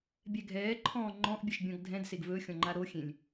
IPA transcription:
bʲ ɛ ɡʱ ɛː ǃʰ ɔ̃ː ŋ͡ǃ ɔ̃ ʔ bʲ ɛ ʃ bʲ ɔ̃ ɡ dʱ ɛ̃ d s e ɡ v ɵ xʲ ɔ̃ ŋ͡ǃ a ɾ o xʲ ẽ lʲ

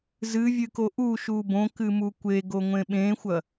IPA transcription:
z ɨ vʲ ɨ k o ʔ u ʃ u b õ k ɨ m u kʷ e ɡ o ŋʷ ẽ ɓ ẽ xʷ ɐ

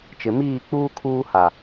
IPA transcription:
t͡ʃ ɪ˨ m iː˦˨ k͡p uː˦ kʰ uː˦ h a˨

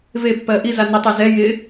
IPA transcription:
v e pː ɜ ʔ i z a n ɪ tˤ ɜ z ɛ j ɪ

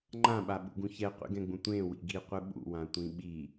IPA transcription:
ŋ͡ǃ ã ɓ a ɓ ṵ ɡ ũ ç ɛ qʷ ḭ ɡ ɛ̃ ɡ͡b ũ tʷ ẽ w ḭ ɡ i qʷ ɯ ɓ ṵ w ã tʷ ĩ ɓ i

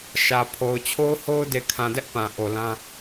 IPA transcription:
ʃ ä˨ pʰ o˨ ʊ̯ t͡ɕʰ o˦ ʊ̯ h o˦ ʊ̯ d e˨ kʰ ã˨ d ɛ˦ ʔ p ã˨ ʔ o˨ l ã˦

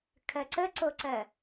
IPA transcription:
kʰ ɜ ǀ ə ǀ o ǀ ɜ

